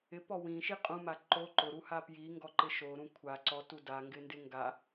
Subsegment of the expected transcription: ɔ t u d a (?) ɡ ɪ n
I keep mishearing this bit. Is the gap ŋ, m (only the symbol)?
ŋ